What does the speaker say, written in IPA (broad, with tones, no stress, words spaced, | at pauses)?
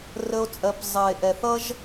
rə˧o̯ t͡sʼɜ˧p zˤɜ˨e̯ʔɛ˨θʌ˦ʒ